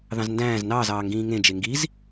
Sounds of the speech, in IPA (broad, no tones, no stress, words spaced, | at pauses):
ðɑ̃zndæ̃ːz nɑːzɑːŋɡĩː ŋẽ d͡ʒeŋɡiz